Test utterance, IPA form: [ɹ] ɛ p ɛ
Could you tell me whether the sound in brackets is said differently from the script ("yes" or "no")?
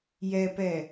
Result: yes